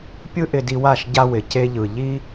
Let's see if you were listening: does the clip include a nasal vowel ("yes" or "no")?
no